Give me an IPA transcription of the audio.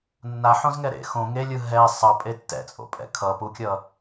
nː a ħ õ z ŋ ɛ ɾ ḛ x õ ŋ e lʲ ɯ ɦ ɛ sˤ ʌ pʼ e tː ɛ̰ t͡sʼ o̰ pʼ ɛ̰ kʰ ʌ p u kʲ ʌ

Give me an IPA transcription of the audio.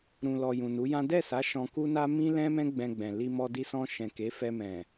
ɾ ũ˨ l ɔ˨ j ũ˨ n u˨˦ j ã˦ d ɛ˦˨ s a˨˦ ʃ ɔ̃˧ k u˦ n a˦ m ĩ˦ l ɛ̃˦ m ɛ̃˦ ɡ͡b ɛ̃˧ ɡ͡b ɛ̃˨ l i˧ m ɔ˧ d i˧ s ɔ̃˧ ʃ ɛ̃˨ k e˨˦ f ɛ˧ m ɛ̃˨

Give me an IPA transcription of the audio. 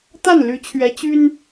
t̪ a˥˩ n l y˧˥ t͡ɕʰ ɥ ɛ˧˥ t͡ɕ y˥ n

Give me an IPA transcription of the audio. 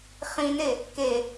χ ĩ n e | k e

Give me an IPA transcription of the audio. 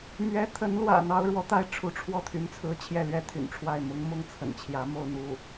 m ɥ ɛ˧˥ t̪ʰ ə˧˥ n l w ä̰˨˩ n̪ ɑ˥ ʊ̯ ɻ w ɔ˥ t̪ a˥ ɪ̯ ʈ͡ʂʰ u˧˥ ʈ͡ʂʰ w ɔ˥˩ t̪ʰ y˧˥ n t͡sʰ ɹ̩˧˥ t͡ɕʰ j ɛ˥˩ l ɥ ɛ˥ t̪ʰ y̰˨˩ n ʈ͡ʂʰ w a˥˩ ɪ̯ m ʊ˧˥ ŋ m ʊ˥˩ ŋ t͡sʰ ə̰˨˩ n t͡ɕʰ j ä˧˥ m o˥˧ ʊ̯ n̪ u˥˩

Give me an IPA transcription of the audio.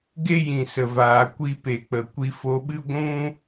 ɡ e˦ j ĩ˨ s ə˨ v aː˨ kʷ i˧ p e˨ k͡p ə˨ kʷ i˧ f o˧ ɓ ɨ˦ ɡʷ ũ˦

